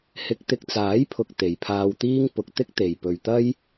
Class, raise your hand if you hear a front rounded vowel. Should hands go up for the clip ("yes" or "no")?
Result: no